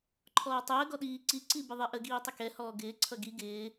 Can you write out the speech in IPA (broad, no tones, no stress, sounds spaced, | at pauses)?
ǃʰ ɔː tˤ əː ɡ ɔ ɗ iː ǀ i ǀ i b ɪ ðˤ ɛ ʔ ə ɡ iː tˤ ə k ɛ h ɔː ɡ ɪː ǀʰ ʌ ɡ i ɡ ɪː